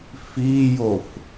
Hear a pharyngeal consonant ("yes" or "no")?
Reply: no